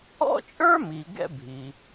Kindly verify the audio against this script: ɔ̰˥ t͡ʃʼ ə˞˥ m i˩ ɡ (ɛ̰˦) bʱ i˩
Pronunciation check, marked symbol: correct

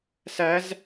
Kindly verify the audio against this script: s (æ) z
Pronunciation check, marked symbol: correct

